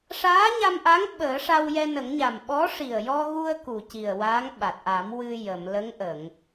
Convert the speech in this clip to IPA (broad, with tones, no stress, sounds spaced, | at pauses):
ʂ aː˧˥ ɲ a˧ m ʔ a˧˥ ŋ ɓ əː˨˩˦ ʂ a˧ w j ɛ˧ n ə˨˩˦ ŋ ɲ a˨˩ m ɓ ɔ˧˥ ʂ i˨˩ ə̯ j ɔ˧ ɣ u˧ ə̯ k u˨˩ c i˨˩ ə̯ w a˧˥ ŋ ɓ a˨˩ t̚ ʔ a˨˩˦ m w ɨ˧ j ə˨˩˨ m l ə˧˥ ŋ ʔ ə˨˩˨ ŋ